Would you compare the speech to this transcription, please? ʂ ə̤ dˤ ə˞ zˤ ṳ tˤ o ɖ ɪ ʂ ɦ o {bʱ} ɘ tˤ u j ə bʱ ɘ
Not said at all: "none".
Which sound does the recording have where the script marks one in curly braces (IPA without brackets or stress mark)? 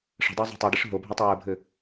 bʱ